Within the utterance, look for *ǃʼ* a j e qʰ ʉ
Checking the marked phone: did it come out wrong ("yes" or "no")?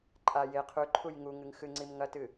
no